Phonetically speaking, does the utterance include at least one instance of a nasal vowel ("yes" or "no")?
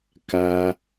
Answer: no